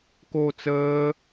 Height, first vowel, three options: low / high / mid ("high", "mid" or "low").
mid